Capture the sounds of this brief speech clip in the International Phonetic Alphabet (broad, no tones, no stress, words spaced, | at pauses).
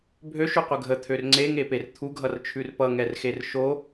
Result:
bʱøʃʉqʷə ɡʱət̪ʰør ŋ͡ǀeŋeper t̪ʰuɡʱʌrt͡ʃʰʉr pʌŋɛrxer ʃo